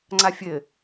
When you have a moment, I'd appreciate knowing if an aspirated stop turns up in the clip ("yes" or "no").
no